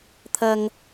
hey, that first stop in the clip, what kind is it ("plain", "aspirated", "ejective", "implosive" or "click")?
aspirated